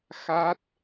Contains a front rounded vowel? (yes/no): no